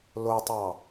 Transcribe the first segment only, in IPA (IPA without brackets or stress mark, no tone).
l